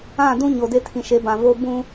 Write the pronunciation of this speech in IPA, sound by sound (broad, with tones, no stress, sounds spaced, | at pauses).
ã˦˨ d ũ˦ ɲ o˨ d e˦ tʰ ĩ˨ ʃ e˨˦ b ã˨ v o˦ b ũ˦